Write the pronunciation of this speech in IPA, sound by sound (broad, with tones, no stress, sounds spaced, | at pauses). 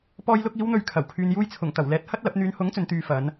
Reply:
p ɔː˧ j l ʊ˧ k̚ iː˨˧ w n̪ ɵ˨ ɥ kʰ ɐ˨˩ w kʰ yː˨ n j uː˧ j t͡sʰ ʊ˨˩ ŋ t̪ ɐ˨˩ w l ɛː˨˥ t̚ h ɐ˥ t̚ l ɐ˨˥ p̚ n̪ yː˨ n h ʊ˨˥ ŋ t͡s ɵ˨˧ n t̪ yː˨˧ f ɐ˨˧ n